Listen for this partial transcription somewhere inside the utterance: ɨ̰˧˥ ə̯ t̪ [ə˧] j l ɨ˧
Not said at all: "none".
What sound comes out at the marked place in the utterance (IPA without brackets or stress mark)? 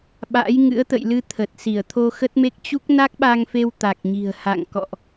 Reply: ə̰˧˨